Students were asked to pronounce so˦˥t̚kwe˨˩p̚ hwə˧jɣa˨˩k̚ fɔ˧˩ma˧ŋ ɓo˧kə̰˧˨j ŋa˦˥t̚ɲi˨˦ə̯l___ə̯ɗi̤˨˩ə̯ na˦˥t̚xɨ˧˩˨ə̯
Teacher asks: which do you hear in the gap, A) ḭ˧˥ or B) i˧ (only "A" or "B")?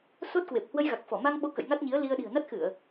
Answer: B